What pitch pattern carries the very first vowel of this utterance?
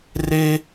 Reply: high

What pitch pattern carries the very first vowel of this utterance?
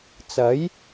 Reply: rising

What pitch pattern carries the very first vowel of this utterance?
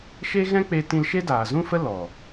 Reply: high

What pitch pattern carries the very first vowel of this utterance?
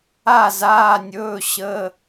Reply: falling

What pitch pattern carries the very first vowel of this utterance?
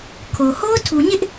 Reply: low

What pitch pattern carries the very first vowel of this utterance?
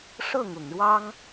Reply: falling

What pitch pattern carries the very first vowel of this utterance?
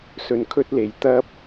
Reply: low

